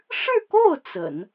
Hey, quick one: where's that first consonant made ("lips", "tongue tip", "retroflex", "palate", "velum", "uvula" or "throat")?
retroflex